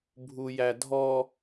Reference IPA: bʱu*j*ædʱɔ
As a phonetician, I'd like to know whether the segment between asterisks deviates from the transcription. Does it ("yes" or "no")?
no